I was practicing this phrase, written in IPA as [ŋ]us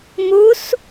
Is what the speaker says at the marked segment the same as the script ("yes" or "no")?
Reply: no